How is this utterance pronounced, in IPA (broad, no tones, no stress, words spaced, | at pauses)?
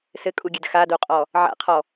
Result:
sɘkʼuɡʲɘd xadoqʼɔ | ʕa̰qʰɔ